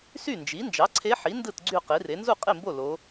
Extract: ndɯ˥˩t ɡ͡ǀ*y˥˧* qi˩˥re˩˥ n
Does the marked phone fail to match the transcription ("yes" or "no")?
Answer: no